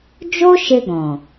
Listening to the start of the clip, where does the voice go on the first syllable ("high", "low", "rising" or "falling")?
high